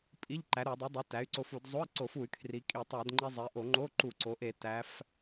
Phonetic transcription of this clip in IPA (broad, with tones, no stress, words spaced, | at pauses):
pʼi˧˥˧ʎ ǃæ˩˥ɾo˧˩˧dˤi˩˥dˤi˩˥ tæ˩˥y̯ǀo˧fu˧˩˧d zˤo˧˥˧i̯ǀo˧˩˧fu˧˩˧y̯kʰri˩˧ kʼi˧˩˧tˤæ˧˩˧dŋ͡ǃi˧ zˤi˩˧ʔo˧˩˧ŋ͡ǃo˧˥˧ ǃu˧˩˧ǀo˩˧ʔe˧˩˧ tæ˩˧f